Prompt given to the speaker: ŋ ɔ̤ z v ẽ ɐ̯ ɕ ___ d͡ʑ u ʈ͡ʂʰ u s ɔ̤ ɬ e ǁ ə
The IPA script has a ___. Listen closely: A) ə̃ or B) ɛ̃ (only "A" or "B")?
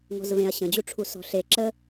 A